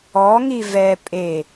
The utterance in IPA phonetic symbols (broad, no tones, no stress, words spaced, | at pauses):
ɔŋi vɛ pʼe